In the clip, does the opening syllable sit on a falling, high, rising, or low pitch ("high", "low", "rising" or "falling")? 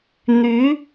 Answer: rising